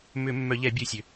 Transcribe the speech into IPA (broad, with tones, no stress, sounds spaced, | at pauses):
m ʏ˧˩˧ mː œ˧˩˧ ʎ ɛ˧˩˧ bʲ u˧˩˧ sʲ ø˩